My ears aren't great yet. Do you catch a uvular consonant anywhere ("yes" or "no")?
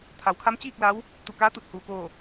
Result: no